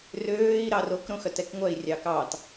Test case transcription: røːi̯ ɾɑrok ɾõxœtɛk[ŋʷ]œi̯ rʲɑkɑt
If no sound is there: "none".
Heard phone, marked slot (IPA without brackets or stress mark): ŋʷ